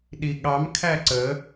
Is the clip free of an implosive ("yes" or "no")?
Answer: no